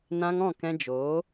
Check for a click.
absent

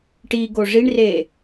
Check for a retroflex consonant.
present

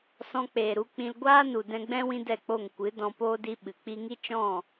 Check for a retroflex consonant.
absent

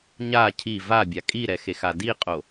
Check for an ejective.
present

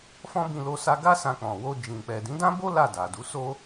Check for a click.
absent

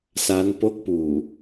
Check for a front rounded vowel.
absent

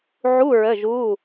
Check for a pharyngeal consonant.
present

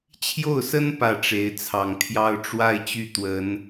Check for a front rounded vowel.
present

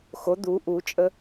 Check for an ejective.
present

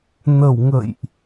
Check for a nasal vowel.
absent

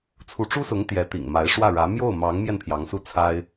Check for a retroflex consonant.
present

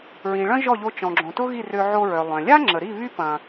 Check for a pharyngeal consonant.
present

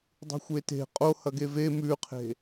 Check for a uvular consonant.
present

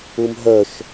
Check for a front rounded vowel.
present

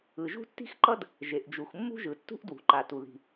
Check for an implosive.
absent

